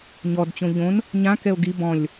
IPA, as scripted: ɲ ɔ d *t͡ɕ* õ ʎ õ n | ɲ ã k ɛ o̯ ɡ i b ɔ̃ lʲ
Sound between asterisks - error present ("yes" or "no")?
no